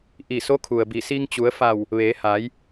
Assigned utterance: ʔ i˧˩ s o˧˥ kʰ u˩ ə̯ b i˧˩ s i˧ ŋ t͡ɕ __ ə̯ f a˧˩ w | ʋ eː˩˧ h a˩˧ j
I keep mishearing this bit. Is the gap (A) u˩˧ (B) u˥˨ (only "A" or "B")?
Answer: A